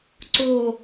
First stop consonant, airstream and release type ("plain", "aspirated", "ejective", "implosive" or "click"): click